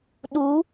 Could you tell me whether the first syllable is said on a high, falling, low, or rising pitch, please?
rising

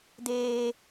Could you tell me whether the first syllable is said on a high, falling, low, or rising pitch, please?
high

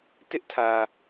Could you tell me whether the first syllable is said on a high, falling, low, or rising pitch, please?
high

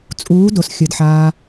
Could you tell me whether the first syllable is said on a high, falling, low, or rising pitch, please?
rising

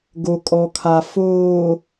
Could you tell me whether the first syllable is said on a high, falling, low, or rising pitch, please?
low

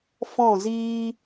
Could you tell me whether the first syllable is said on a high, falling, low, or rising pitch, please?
falling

